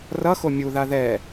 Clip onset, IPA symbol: r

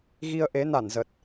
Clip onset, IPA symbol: ɣ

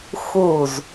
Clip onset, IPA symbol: x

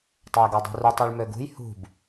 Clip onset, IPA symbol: tˤ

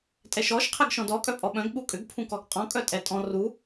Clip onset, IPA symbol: tʼ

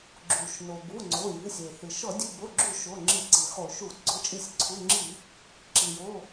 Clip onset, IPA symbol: ɡ͡ǁ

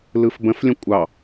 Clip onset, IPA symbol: l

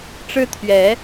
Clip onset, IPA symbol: ʈ͡ʂ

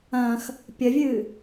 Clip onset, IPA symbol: ɐ̃ː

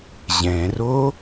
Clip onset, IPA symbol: ʑ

